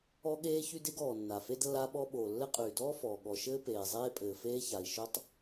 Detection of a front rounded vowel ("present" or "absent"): present